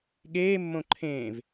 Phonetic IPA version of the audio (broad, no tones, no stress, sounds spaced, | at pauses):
ɠ eː mː õ ǃʰ ẽ v